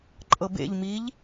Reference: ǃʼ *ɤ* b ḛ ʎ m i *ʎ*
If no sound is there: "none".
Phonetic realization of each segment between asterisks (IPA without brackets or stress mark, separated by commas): ɤ, ʎ